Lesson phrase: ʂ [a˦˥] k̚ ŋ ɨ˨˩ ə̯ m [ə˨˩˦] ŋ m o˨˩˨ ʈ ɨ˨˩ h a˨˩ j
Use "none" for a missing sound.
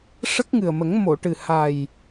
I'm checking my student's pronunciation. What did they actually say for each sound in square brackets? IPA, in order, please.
ə˦˥, ə˨˩˦

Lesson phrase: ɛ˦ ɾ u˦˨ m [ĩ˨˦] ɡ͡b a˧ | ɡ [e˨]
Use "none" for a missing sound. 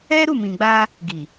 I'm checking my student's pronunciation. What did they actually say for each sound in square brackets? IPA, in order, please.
ĩ˨, i˨

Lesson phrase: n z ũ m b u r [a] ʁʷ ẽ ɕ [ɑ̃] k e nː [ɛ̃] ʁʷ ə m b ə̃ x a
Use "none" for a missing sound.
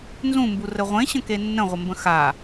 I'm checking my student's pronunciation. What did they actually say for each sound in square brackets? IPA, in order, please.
ə, ə̃, ə̃

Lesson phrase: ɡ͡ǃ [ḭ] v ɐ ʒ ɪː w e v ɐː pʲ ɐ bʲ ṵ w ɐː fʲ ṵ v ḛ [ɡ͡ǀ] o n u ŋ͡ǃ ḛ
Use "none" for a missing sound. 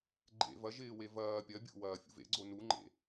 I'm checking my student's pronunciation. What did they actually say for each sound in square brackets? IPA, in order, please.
ḛ, ɡ͡ǀ

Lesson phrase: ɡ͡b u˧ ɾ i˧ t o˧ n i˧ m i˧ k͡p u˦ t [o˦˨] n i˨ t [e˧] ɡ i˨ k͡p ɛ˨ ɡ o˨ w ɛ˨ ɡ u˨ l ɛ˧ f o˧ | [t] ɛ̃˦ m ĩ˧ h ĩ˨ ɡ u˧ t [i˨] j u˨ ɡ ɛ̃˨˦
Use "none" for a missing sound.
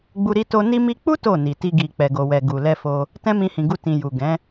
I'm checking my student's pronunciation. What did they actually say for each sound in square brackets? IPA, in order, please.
o˦˨, i˧, t, ĩ˨

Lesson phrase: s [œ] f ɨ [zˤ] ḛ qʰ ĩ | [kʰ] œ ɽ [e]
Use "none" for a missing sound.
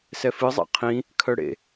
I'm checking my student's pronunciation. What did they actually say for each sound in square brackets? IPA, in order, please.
ɛ, zˤ, kʰ, ḛ

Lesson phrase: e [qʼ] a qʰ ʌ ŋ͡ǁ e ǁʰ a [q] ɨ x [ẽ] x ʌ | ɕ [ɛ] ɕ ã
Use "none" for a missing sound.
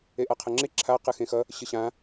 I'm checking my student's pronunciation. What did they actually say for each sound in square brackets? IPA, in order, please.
ʔ, q, ẽ, ɨ

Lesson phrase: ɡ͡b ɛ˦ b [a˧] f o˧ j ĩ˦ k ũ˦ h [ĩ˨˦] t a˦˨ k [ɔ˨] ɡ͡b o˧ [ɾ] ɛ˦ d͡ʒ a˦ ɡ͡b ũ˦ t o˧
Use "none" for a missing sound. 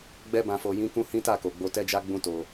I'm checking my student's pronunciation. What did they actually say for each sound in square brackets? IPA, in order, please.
ã˧, ĩ˦, o˨, t

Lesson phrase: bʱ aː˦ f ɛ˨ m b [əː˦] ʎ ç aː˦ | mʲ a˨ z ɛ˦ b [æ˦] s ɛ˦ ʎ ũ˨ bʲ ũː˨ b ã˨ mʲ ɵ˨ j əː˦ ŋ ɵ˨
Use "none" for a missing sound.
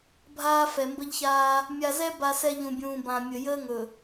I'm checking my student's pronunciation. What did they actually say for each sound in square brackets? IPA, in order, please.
ə˦, a˦

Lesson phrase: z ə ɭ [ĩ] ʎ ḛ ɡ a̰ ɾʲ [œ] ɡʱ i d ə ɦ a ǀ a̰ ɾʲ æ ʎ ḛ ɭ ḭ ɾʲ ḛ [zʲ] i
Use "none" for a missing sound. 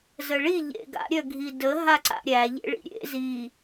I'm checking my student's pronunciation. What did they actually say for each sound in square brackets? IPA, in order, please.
i, œ, z

